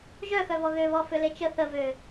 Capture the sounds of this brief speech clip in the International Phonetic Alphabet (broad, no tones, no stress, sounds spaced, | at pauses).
ʒ œ x œ v ɔ ɣ ø β ɔ f ø l e t͡ʃ ə θ ə v ø